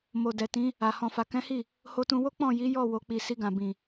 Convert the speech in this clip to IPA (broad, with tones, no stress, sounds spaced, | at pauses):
m o˨ d ɛ˨ t ĩ˨˦ | a˨ h ɔ̃˨ f a˨ k ɛ̃˨˦ h i˦˨ | h o˧ t ũ˧ w o˦ k͡p ɔ̃˦˨ j i˨˦ j ɔ˦˨ w o˨ k͡p i˨ s i˧ ɡ ã˨ b ĩ˨